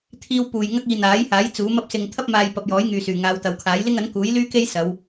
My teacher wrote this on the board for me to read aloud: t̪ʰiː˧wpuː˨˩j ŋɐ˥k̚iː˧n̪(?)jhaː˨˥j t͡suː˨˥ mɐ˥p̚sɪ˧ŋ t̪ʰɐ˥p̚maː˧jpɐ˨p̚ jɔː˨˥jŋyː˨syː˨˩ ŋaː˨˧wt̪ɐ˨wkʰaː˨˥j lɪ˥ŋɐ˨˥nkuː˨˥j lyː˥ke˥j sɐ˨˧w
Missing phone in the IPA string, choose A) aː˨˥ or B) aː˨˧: A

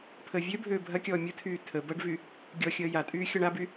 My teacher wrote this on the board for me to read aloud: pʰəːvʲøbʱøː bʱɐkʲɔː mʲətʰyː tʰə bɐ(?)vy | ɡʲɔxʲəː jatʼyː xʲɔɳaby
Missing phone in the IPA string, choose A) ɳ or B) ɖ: B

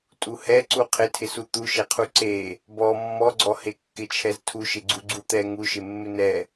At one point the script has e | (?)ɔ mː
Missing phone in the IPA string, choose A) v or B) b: B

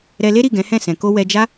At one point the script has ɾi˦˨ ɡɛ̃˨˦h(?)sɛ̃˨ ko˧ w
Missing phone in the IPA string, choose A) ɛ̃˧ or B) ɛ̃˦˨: B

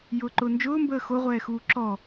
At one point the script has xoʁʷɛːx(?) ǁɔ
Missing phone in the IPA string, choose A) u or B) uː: B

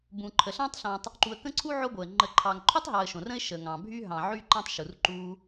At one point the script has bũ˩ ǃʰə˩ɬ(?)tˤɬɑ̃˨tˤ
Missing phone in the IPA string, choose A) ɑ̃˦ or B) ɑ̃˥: A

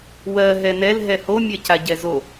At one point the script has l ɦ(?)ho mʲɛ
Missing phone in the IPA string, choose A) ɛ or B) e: A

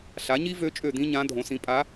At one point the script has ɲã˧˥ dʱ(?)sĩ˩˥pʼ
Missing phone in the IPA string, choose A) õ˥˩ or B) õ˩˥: B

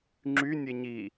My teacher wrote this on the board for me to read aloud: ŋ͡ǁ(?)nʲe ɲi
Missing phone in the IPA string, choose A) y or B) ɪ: A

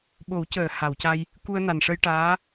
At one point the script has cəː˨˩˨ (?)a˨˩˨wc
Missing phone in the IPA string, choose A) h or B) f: A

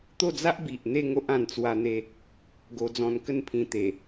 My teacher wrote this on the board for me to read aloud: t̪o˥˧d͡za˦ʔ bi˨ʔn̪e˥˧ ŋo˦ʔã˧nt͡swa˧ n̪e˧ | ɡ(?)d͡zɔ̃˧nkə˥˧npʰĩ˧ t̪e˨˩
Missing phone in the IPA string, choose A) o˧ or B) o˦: A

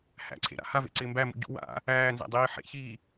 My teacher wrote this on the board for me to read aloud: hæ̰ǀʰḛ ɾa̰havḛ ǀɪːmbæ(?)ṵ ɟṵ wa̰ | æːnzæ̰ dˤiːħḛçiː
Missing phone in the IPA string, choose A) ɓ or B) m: B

